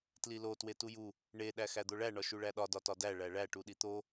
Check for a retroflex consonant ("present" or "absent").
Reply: present